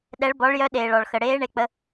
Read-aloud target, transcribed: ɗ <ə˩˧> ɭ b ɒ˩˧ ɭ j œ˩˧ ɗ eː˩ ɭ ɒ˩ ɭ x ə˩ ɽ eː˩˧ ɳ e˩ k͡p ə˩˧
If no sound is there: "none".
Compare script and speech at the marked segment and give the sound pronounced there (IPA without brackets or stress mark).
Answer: ɛ˩˧